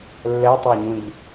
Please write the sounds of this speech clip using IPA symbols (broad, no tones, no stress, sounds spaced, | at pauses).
lː ɛ tˤ a ɲ ũ ʎ